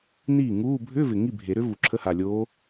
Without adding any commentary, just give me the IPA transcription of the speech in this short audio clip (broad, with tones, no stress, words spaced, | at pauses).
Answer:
niː˥˩ŋuː˧˥˧ bʱʏː˧˥˧vɪ˨˩ ŋi˥˩bʱe˨˩˦ɾʏ˧˥ vu˨˩ǁʰə˧˥˧ha˨˩lʲoː˧˥